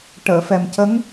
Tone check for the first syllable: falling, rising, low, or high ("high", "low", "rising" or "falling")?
low